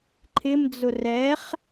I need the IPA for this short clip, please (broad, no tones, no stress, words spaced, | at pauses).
ǃʰɪmd͡zʊ rɛχ